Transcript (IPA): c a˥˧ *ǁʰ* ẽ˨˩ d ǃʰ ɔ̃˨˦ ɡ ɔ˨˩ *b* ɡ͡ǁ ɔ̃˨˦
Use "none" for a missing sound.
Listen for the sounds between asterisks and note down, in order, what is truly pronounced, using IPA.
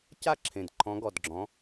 ǁʰ, d

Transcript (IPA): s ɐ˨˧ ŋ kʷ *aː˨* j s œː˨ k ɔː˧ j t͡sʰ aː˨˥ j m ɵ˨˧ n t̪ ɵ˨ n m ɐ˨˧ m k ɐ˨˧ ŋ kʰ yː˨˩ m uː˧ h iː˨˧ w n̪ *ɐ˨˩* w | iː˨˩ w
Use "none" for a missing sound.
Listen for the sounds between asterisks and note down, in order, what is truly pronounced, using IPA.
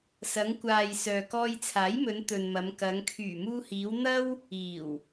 aː˨, ɐ˥

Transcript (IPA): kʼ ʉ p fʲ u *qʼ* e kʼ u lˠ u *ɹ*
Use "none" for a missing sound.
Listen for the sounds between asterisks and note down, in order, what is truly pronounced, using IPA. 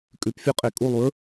qʼ, ɹ

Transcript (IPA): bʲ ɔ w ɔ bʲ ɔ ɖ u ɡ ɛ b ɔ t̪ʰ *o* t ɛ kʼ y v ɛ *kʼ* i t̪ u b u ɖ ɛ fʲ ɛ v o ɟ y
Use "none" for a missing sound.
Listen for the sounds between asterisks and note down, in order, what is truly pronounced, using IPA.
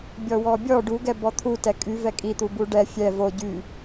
u, kʼ

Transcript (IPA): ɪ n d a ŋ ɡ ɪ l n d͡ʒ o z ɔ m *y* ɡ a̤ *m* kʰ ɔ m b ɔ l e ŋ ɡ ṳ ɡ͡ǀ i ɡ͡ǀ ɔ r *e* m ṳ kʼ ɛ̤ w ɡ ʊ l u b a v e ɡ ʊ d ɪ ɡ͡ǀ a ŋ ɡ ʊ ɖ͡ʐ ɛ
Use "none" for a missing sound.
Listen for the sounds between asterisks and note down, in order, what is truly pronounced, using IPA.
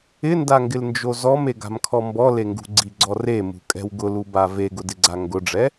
e, m, e

